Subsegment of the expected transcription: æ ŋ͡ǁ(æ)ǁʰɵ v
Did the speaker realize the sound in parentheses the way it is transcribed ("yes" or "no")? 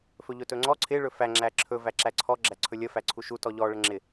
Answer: yes